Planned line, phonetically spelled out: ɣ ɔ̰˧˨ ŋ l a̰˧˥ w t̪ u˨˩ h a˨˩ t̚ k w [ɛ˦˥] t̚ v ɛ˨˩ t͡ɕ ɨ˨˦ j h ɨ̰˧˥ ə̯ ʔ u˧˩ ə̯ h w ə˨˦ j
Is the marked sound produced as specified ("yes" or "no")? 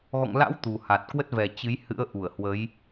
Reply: no